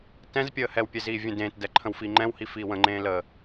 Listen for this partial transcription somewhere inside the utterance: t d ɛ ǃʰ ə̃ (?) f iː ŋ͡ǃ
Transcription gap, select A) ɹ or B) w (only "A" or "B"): B